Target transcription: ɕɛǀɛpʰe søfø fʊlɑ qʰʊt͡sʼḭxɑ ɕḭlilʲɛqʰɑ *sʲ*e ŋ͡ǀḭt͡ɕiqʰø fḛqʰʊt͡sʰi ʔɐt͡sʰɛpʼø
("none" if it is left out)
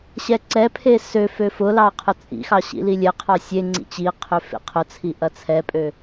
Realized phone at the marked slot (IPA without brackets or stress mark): sʲ